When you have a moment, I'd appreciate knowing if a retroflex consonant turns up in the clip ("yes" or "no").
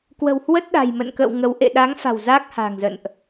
no